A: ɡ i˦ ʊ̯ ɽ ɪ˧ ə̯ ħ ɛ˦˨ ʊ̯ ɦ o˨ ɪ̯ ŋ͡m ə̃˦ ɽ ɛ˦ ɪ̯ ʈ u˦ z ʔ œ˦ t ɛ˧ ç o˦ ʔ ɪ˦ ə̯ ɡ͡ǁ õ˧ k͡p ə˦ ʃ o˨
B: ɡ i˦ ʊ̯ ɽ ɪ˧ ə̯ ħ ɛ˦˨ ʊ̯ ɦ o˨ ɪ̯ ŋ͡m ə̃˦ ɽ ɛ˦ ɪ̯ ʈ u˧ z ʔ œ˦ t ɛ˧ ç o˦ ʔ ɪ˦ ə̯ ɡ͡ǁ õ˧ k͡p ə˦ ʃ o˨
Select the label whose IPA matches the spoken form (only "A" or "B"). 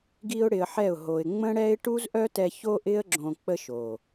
A